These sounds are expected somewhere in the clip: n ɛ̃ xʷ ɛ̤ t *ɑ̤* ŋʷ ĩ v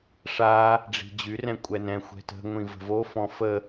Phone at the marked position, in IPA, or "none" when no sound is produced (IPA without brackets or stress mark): ə̤